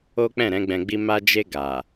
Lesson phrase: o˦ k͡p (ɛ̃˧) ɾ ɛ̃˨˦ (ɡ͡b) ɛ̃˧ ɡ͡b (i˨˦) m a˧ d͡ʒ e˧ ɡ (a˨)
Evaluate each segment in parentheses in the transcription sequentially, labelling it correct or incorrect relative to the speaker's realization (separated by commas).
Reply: incorrect, correct, incorrect, correct